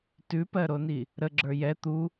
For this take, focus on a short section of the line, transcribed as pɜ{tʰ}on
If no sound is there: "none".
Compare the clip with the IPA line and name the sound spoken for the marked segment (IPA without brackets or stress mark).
ɾ